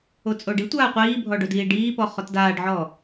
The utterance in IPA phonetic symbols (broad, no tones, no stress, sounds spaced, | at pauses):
o t͡sʼ o ɖ i tʷ aː qʷ iː bʱ ɔ ɖ o d iː ɖ iː p ɔ χ ɔ t d aː ɖ ʕ ɔː